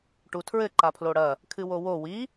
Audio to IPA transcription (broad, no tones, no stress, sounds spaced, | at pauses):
ʈ u tʰ ɹ ɘ ǃ a pʰ l o ɽ ɐ | kʰ ɨ w o w o w i